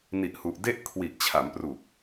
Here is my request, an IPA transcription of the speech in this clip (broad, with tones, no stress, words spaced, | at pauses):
ni˨˩ʔhu˨˩ʔde˥˩ʔ kʰwi˨˩ʔt͡ɕʰa˩˦mpru˨˩k̚